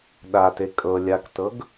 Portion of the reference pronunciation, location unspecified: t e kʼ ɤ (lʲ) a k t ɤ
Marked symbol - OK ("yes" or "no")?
yes